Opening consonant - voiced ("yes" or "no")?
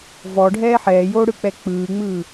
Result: yes